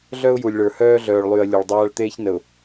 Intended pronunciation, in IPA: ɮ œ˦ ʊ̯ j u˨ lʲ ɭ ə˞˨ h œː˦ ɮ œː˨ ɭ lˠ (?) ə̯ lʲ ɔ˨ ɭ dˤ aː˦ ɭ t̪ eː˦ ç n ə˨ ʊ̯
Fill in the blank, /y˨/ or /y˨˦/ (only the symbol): y˨